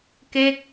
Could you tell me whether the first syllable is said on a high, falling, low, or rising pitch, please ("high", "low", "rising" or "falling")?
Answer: falling